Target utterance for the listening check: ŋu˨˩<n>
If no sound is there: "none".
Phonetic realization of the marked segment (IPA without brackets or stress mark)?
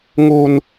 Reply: n